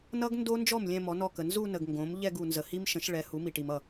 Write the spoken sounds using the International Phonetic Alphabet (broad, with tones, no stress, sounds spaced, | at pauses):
n ʌ˦˥ ɡ n d o˦˥ n d͡ʒ ɔ˥˩ m lʲ ɛ̃˥˧ m ɔ˩˥ n ɔ˥˩ k ə˨ n z u˥˧ n ə˨ ɡ ŋ ɡ õ˩˥ m ʎ ɛ˥˧ ɡ u˨ n z ə˨ h i˦˥ m ʃ ə̃˩˥ ʃ ɭ ɛ˩˥ h u˩˥ m i˨ ʈ i˨ m ʌ˥˩